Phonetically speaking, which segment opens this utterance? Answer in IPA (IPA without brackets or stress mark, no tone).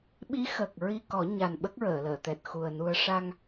ɓ